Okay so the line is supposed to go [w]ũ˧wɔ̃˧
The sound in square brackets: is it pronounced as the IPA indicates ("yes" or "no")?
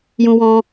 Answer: no